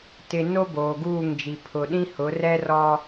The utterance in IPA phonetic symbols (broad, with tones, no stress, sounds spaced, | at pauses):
t ɪ˨ n o˦ b oː˨ ɡ uː˦˨ ŋ d͡ʒ i˨ pʰ ʊ˨ ɗ ĩ˦ h ʊ˨˦ r ɛ˦ r ɔ˦